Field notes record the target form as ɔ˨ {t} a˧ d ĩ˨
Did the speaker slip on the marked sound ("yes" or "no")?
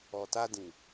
no